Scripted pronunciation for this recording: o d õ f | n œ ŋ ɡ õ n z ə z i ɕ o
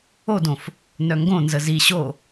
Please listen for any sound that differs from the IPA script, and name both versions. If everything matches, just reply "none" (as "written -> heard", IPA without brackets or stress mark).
none